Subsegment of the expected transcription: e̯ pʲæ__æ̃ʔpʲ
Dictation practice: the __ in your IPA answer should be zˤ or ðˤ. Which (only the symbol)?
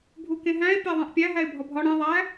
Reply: ðˤ